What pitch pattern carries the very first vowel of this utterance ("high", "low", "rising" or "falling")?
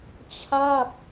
falling